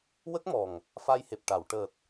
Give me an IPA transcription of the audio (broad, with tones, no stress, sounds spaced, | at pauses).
w ə˦˥ k̚ m ɔ˨˩ ŋ | f a˧ j h e˨˩ p̚ ʈ a˨˩˨ w ʈ əː˨˩ t̚